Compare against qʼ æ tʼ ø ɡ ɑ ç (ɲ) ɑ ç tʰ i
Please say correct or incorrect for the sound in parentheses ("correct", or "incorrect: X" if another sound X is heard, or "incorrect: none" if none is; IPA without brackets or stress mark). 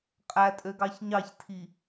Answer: correct